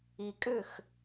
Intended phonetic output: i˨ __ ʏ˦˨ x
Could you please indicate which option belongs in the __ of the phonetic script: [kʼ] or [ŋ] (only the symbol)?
kʼ